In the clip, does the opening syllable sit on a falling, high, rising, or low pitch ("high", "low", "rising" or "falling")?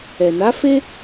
low